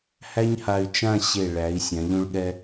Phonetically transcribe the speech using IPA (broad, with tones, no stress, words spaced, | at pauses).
hæ˥ɲha˧y̯t͡ʃã˥˧ ɕe˧˩ɭæ˩˧i̯ sʲã˩˧ʎũ˧ɭɠɛ˧